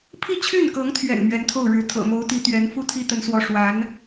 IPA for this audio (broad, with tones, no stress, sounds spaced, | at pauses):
pʰ i˥˧ t͡ɕʰ y˥˩ n k ɤ˧˥ ŋ t̪ʰ ɥ ɛ̰˨˩ n m ɥ ɛ˧˥ n t̪ʰ o˥˩ ʊ̯ ɻ ɻ̩˧˥ t̪ʰ ɤ̰˨˩ m o˧˥ ʊ̯ t̪ i˧˥ t̪ ɥ ɛ˧˥ n f u˥ t̪ʰ i˥ t̪ ə˧˥ n s w ɔ˧˥ ʂ w a˧˥ n